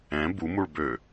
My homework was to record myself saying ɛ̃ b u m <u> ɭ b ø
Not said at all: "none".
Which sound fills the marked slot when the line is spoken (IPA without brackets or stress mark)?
u